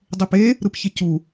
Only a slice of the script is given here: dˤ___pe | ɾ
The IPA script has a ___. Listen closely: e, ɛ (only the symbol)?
e